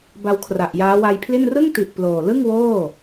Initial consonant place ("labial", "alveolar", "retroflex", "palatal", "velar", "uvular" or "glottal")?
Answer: labial